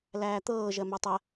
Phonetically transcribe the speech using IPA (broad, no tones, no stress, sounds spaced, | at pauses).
l æː t̪ ɤː ʒ ɜ m ø tˤ ɜ